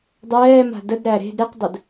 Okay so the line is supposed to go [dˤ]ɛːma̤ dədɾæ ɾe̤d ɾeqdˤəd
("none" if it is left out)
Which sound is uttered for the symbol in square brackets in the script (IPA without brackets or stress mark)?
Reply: dˤ